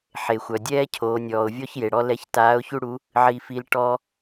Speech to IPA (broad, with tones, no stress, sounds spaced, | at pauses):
ħ e˩ xʷ œ˩ dʲ ɛː˥ cʰ oː˩˧ nʲ ɔː˩ ʊ̯ vʲ ɔ˥ ç j e˩ ɽ ɔ˧ l ɛ˧˥ ç t aː˧˥ ʊ̯ ç u˥ ɽ u˧˥ | ʕ i˧ f i˧˥ l ʈ ɔ˧